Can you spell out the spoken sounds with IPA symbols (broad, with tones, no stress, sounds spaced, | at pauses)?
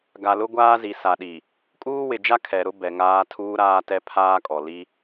ɡ a˨ l ʊ˦ ɡʷ aː˦ z i˨ s a˨ ɗ i˨ | kʼ uː˦ w ɪ˨ d͡ʒ a˦ kʰ ɛ˨ ɾ ʊ˦ b ɛ˨ ŋ aː˦ tʰ uː˦ ɾ aː˦ t ɛ˦ pʰ aː˦ kʼ ɔ˨ l i˦